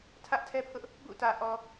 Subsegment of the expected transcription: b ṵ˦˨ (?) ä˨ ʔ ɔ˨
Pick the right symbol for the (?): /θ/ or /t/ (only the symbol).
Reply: t